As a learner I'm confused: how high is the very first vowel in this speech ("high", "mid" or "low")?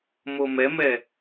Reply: mid